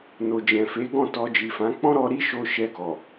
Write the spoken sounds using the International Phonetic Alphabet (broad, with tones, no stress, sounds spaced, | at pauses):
n o˨ d͡ʒ ɛ̃˨ f e˨˦ ɡ ɔ̃˦˨ t ɔ˧ d͡ʒ i˨ f ã˨˦ k͡p ɔ̃˦ ɾ ɔ˧ ɾ i˦ ʃ o˧ ʃ ɛ˧ ɡ ɔ˨